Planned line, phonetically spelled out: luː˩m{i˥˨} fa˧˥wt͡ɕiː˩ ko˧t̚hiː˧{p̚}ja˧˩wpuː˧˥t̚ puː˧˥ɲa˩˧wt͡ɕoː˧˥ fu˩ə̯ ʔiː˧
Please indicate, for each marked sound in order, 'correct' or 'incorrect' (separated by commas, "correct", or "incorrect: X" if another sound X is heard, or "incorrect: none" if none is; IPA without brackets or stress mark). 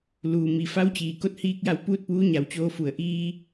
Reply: incorrect: i˩, incorrect: k̚